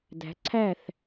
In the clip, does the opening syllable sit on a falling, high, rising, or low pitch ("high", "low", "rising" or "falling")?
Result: rising